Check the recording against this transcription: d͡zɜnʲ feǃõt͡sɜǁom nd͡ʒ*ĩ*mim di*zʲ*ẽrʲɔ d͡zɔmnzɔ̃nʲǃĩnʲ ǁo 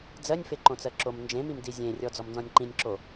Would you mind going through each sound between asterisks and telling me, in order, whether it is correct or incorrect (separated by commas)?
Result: incorrect, correct